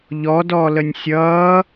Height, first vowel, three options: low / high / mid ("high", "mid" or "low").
mid